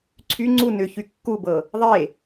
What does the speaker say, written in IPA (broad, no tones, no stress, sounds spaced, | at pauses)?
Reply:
ǀʰ y ŋ͡ǀ u n ʏ ç y kː u b ɤ | ðˤ e